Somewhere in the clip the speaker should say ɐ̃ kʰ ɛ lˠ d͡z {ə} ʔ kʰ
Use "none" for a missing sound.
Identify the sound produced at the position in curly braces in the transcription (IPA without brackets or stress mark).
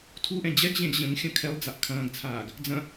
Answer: a